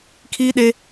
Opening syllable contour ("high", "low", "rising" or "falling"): high